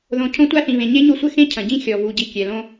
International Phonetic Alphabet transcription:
ð õ˨ cʰ õ˦ tʷ a˦ θ ĩ˨ β ẽ˨ ɲ e˦ ɲ o˦ sʷ ɘ˦ x ẽ˦ cʰ ɐ̃˨ ɟ ĩ˦ xʲ ɔ˨ v u˨ ɟ i˨ kʲ ɛ˨ l õ˦

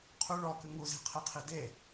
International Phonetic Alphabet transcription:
qʰ u ɭ ɔ k ɨ ŋ u z i̤ qʰ e qʰ i d e

